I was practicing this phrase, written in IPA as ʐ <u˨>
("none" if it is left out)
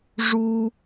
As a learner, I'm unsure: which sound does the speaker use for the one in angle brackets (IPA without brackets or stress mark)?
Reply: u˦